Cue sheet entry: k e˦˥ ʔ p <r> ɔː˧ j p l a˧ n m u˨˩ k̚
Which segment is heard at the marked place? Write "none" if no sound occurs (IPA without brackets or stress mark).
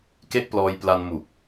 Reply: l